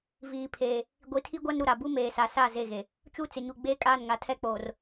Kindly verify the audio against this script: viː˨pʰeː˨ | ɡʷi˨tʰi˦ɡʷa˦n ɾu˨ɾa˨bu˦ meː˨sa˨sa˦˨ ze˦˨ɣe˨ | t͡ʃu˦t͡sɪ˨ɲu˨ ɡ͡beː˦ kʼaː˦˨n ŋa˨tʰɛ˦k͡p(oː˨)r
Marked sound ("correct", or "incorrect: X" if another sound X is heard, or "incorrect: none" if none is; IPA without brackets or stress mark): correct